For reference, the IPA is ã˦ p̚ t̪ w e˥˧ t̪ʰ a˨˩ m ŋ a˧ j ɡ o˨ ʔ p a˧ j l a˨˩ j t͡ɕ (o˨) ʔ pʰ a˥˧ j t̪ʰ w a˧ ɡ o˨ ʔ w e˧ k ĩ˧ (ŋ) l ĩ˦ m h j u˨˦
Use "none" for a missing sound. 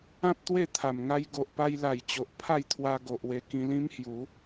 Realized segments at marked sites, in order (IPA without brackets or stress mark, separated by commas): o˨, none